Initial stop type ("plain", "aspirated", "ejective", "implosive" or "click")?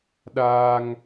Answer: implosive